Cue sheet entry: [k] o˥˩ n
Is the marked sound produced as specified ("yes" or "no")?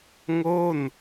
no